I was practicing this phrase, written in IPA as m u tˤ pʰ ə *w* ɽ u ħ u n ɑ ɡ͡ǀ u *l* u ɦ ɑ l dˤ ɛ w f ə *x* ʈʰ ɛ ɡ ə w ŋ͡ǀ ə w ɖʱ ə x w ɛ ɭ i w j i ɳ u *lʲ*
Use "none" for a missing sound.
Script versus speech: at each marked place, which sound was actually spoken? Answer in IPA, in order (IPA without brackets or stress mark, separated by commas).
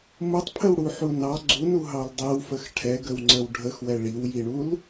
w, n, x, l